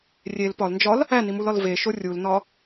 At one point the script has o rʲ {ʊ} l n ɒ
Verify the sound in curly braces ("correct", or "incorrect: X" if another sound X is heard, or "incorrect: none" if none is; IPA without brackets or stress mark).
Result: incorrect: u